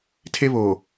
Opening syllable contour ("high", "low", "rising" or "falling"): high